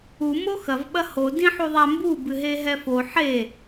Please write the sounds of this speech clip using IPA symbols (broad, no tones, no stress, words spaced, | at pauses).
u moxɐv ɓɐho dĩħuðˤambu bɨɦeɦɛfo ħe